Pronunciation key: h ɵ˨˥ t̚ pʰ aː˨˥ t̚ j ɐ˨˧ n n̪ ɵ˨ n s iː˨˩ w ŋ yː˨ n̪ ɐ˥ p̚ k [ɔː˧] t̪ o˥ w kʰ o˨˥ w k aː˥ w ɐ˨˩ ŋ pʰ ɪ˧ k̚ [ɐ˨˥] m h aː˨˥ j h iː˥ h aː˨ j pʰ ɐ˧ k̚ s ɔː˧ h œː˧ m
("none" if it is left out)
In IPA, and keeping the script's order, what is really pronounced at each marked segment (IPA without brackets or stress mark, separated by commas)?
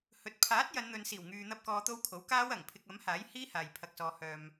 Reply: ɔː˧, ɐ˨˥